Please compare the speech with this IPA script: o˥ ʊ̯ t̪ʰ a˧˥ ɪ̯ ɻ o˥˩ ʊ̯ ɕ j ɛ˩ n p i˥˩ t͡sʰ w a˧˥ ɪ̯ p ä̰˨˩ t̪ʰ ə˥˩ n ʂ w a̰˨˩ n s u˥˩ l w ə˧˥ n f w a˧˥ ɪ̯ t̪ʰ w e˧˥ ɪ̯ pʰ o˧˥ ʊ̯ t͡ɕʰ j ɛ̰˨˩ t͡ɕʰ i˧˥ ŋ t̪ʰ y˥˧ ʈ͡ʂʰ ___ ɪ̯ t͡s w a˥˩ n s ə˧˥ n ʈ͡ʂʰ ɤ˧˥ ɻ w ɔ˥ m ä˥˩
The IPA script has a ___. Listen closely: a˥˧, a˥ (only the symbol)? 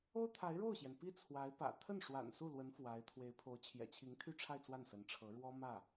a˥˧